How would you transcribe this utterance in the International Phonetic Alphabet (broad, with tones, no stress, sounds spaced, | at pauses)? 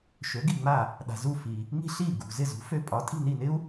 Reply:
ʃ ø˩˥ ɡ i˥˩ ŋ͡m a˥˩ | ɗ a̤˩ z u˥˩ f i˩ | ŋ i̤˥ ɬ i˥˩ ɡ ṳ˩ z ɪ˥˩ z ṳ˩˥ f ø˧ pʼ ɒ˩˥ tʼ i̤˥˩ n i˥˩ n ɪ˥ u̯